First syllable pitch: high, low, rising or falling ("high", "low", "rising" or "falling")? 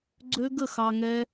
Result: high